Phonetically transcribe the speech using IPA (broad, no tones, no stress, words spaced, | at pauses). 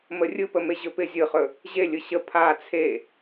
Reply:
mərʲɯpə meʑɵpɪ zʲɯχɵ | ʑelʲɯ ɕə pʰa t͡sʰe